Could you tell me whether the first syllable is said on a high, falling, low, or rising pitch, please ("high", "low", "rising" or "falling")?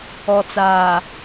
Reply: low